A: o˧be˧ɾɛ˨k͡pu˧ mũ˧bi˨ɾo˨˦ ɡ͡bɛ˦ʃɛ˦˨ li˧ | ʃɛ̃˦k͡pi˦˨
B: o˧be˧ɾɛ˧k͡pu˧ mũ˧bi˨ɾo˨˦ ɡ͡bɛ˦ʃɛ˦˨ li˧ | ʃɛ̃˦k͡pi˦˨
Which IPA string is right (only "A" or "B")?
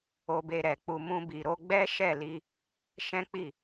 A